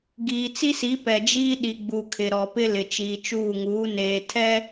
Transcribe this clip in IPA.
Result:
ɡiː˨t͡si˦si˨˦pɛ˨ d͡ʒiː˦ɗi˨ɡ͡bu˨ kʰɪ˨ɾɔ˨pɪ˦ lɪ˨t͡ʃiː˨t͡ʃuː˦˨ŋuː˨˦ neː˨tʰɛ˦

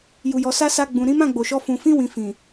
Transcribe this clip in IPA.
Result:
ju˨jɔ˨sa˧ sa˧ɡ͡bũ˨ ɾĩ˨˦mã˦˨ ɡ͡bo˨ʃɔ˧fũ˨ fĩ˧wĩ˨ fĩ˨

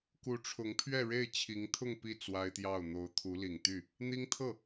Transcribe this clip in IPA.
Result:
ku˧˥ʈ͡ʂʰʊ˧˥ŋpʰɥɛ˥˧ ɻe˥˩ɪ̯t͡ɕʰi˧˥ŋt̪ʰʊ˥˧ŋ pi˥˩ t͡swa˥ɪ̯t̪jɑ˥˩ʊ̯ n̪o˧˥ʊ̯t̪ʰu˧˥ li˨˩ŋt̪y˥˩ | n̪i˥ŋt̪ʰɤ˥˩

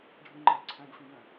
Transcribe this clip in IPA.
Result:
ɖʱə̃ŋ͡ǃəː ǀʰæ̃ɡfĩ jə̃

